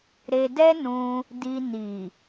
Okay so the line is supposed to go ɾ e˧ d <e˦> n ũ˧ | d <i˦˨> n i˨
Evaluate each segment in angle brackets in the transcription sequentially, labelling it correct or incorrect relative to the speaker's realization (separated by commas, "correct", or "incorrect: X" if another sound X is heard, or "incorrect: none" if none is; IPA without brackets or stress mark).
incorrect: ɛ˦, incorrect: i˧